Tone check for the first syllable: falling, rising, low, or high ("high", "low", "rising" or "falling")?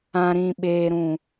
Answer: low